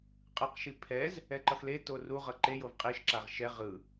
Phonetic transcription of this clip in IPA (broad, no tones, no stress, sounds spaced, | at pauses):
qʼ ɯ q ʃ i pʰ ɛ z | ɛ ǃ ʌ x l e t o r u ʁ ʌ ǃ e j o v qʼ i ʃ ǁ a ʁ ʃ ɛ ʁ ɯ